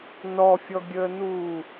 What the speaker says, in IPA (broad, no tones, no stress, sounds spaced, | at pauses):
n ɔ fʲ ɔ ɡʲ əː n uː